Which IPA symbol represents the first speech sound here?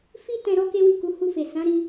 f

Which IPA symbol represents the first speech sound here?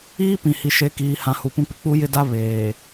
iː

